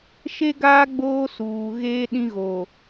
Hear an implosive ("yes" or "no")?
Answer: yes